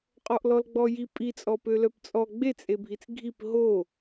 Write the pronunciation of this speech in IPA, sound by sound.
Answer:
qʼɔʔlɔlɡ͡bɔji pʼit͡sʼɔpø lœpt͡sʼɔ ɡ͡bet͡sʼebʱit͡s ɡʱip ɦo

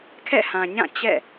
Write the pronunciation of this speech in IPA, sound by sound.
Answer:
kʰɛ̰˦˨hã˨ɲã˦˨ t͡ɕɛ̰˦˨

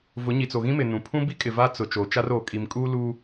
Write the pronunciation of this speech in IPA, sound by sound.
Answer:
vʊ˨˦ɲi˨t͡so˨ɣĩ˦ mɪ˨nũ˨ pʰũ˦bi˦kʼɪ˨ va˦t͡sʊ˨ t͡ʃoː˨t͡ʃa˦roː˨ kʼi˨m kʼu˦ luː˦

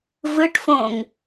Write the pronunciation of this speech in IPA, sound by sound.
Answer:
vɯʈfõŋ

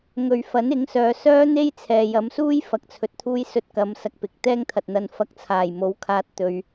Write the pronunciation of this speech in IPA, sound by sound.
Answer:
ŋɵ˧ɥ fɐ˨˥nɪ˨˥ŋsœː˨ sœː˥n̪e˥j t͡sʰɛː˨jɐ˨˧msuː˥j fɐ˧k̚t͡sʰɵ˧t̚t̪ʰuː˥j sɵ˧t̚kɐ˨˧msɐ˨k̚ pɪ˨k̚ t̪ɛː˥ŋt̪ʰɐ˨t̚n̪ɐ˧n fɐ˨˥k̚t͡sʰaː˨˩j mo˨˥wkʰaː˧t̚ t̪ɵ˧ɥ

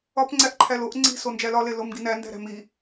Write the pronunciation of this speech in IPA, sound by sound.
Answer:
ɒpŋ͡ǀæʔǃʰæl oʔ ŋ͡ǀi̤ sond͡ʒælɒle lomɡinæ ndæ̤ɾæ̤mi

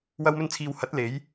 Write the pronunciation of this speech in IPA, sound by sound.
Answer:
wɐ˧wmɵ˧nt͡sʰiː˨w hɐ˨˥t̚ le˨˥j

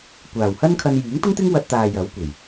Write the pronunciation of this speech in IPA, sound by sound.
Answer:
kʷaː˨˩whɐ˥nkʰɐ˧n jyː˨˥ŋt̪ʊ˥ŋt̪ɪ˥ŋ wɐ˧t̚t̪aː˨ jɐ˨˥w kʷe˨˩j

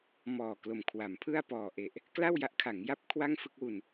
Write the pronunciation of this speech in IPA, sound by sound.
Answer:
mɔː˨˩klo˨˩m kʰwa˩˦mpʰɯ˥˩a̯ pɔː˨˩ʔe˨˩ʔ | kla˥˩w ja˦˥ʔkʰa˩˦ŋja˥˩p̚ kʰwa˥˩ŋfɯ˥˩k̚wu˧n

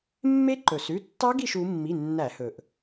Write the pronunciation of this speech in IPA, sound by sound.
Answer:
mːe˦˥ǃɵ˩sʉ˩˧˩ tːɑ˦˥ɡi˦˨ʃ u˩˧mːi˩˧˩ nːæ˧˩˧hɵ˩ʔ

